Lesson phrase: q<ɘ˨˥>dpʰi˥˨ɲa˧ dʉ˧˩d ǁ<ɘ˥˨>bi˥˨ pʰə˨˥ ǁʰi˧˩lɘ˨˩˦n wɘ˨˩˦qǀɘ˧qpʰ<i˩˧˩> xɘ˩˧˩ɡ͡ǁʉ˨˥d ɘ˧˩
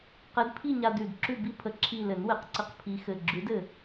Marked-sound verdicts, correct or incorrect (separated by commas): correct, incorrect, incorrect